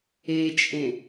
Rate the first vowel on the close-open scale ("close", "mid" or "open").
mid